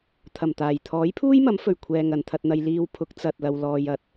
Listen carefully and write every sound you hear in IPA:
t̪ʰɐ˨˩mt̪aː˨˩j t̪ʰɔː˨˥jpʰuː˥jmɐ˨˥mfɵ˨˩ɥ kʷʰɛː˨ ŋɐ˨nt̪ʰɐ˧t̚n̪ɐ˧j liː˧wpʰʊ˨˥k̚ t͡sɐ˨t̚lɐ˨w lɔː˨jɐ˨˥t̚

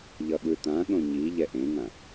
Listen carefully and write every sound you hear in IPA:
ʎʌɠɯt̪ãɠõ ɲi ʎɛʔẽŋã

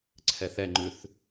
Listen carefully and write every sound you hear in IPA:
ǀʰɛθɛŋ͡ǃʉθ

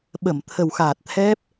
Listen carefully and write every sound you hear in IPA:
ɓə˧˩mt̪ʰə˨˩wxaː˨˩t̚ t̪ʰɛ˦˥p̚

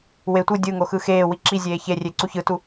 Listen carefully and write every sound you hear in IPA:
we tʷɯ dʲɯŋo xɯxeːwi ǁizʲeː çerʲe ǀuçɯtu

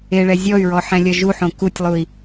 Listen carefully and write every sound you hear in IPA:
eɭɛ zʲɔy̯ɹɔ ħɛ̃lʲɐʒuħõ kutʲlˠui̯

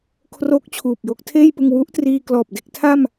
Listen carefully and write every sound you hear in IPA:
kʰroː˦˥k̚t͡ɕʰuː˨˩p̚ jo˦˥k̚tʰeː˥˩jpɯ˧ŋ wu˦˥ʔtriː˧klɔː˨˩p̚ de˥˩k̚tʰa˥˩m

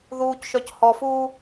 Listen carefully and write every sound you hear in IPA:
ðuːcʃœc hɔfuː

